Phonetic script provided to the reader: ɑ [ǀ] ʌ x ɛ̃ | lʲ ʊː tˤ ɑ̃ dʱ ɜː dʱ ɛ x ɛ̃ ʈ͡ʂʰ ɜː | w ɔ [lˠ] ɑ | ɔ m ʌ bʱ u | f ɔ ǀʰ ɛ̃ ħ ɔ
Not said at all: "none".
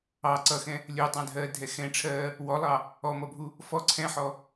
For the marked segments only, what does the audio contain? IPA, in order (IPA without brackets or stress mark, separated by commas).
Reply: ǀ, lˠ